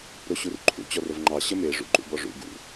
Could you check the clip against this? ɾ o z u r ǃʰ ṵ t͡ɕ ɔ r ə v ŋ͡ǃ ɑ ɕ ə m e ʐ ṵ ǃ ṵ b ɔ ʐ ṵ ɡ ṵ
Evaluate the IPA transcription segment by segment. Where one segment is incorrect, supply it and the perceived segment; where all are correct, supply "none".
z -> ɕ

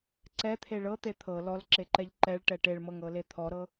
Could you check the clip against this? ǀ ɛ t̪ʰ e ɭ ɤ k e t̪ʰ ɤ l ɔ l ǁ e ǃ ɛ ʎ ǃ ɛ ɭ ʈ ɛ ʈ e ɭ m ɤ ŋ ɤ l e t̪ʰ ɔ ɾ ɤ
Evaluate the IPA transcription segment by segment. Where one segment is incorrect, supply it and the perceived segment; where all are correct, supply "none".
k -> t̪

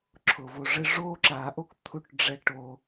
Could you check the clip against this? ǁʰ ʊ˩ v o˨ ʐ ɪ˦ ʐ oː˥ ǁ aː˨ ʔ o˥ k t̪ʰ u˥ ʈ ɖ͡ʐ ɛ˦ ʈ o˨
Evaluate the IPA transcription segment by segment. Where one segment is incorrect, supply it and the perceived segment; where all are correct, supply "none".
none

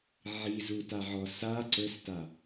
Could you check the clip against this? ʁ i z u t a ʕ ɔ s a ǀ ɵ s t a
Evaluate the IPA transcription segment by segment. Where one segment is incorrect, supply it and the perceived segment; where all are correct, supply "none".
ʁ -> ʕ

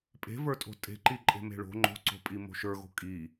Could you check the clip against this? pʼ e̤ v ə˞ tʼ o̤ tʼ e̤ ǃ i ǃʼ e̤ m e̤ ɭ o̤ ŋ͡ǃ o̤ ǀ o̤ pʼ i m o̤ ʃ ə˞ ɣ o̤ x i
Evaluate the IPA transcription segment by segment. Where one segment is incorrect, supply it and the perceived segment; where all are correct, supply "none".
x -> kʼ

